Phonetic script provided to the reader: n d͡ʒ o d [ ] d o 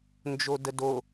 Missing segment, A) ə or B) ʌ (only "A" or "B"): A